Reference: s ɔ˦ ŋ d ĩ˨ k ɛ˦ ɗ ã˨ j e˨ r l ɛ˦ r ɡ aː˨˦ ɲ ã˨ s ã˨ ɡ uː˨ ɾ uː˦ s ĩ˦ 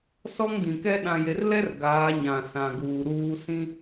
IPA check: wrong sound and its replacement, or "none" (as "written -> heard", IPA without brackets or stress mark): none